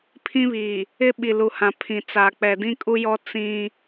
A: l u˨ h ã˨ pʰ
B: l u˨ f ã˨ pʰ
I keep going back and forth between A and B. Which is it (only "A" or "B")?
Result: A